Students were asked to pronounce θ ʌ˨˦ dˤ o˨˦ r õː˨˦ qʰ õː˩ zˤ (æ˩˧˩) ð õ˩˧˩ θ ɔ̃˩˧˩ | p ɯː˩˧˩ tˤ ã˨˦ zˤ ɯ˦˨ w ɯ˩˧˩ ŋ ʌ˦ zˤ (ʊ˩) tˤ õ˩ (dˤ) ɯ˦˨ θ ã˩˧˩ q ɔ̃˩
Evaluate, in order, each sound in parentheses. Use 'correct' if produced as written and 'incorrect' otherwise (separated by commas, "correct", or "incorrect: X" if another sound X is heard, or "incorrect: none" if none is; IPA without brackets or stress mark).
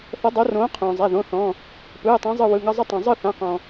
correct, incorrect: ʊ˦, incorrect: zˤ